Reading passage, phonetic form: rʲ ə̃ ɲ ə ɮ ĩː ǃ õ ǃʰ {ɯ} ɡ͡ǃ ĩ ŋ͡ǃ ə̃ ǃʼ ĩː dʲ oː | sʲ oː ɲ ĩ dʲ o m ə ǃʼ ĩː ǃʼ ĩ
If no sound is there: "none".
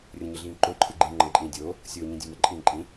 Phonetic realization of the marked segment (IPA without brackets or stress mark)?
ɯ